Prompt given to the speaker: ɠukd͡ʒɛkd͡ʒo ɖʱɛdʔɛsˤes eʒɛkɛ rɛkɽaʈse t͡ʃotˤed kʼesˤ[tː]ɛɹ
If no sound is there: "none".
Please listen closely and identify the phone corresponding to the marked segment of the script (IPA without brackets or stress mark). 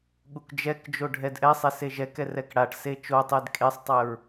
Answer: tˤ